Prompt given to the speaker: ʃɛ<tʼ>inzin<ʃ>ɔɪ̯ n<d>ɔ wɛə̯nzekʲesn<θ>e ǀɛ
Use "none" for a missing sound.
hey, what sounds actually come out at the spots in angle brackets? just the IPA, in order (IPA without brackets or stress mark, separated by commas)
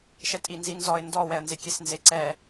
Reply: tʼ, z, d, z